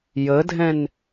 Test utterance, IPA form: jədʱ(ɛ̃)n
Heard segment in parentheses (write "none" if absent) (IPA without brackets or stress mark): ɛ̃